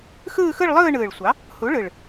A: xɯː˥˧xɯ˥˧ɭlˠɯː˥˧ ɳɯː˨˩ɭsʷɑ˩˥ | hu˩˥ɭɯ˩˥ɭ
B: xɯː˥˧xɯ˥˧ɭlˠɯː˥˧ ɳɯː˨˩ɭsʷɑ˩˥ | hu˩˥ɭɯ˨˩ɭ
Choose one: B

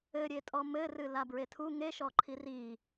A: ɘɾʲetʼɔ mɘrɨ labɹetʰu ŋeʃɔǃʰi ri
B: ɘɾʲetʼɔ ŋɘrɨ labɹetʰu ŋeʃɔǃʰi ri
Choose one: A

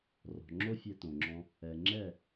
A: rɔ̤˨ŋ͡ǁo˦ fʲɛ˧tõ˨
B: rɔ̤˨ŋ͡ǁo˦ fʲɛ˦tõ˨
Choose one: A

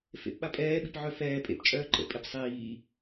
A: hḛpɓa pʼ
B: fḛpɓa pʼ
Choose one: B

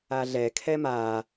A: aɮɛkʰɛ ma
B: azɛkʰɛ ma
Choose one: A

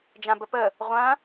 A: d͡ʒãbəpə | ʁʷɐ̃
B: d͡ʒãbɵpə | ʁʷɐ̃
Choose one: A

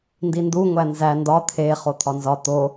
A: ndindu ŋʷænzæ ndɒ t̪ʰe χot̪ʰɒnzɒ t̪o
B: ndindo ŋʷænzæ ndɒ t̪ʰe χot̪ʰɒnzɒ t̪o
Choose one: A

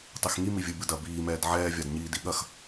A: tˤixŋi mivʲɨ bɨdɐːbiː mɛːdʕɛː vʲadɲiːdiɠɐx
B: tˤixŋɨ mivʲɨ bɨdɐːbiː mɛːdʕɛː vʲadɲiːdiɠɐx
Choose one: A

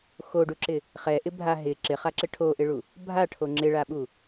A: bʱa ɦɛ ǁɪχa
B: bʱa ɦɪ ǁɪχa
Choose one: B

